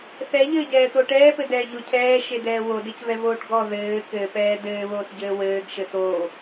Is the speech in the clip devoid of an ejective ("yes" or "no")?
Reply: yes